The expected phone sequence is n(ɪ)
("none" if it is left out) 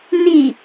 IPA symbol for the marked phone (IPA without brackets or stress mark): i